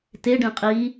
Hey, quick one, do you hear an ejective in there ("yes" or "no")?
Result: yes